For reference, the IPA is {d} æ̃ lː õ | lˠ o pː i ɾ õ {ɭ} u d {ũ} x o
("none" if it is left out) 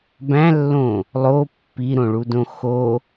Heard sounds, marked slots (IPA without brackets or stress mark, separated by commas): b, ɭ, õ